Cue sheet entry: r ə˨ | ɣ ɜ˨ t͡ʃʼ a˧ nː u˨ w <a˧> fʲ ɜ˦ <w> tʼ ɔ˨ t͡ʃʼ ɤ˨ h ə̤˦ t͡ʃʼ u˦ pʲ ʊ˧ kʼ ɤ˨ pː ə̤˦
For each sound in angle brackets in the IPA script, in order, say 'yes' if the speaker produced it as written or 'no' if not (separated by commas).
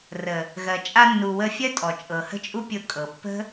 no, no